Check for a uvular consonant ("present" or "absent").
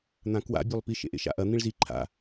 absent